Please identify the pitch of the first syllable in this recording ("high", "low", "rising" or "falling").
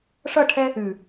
falling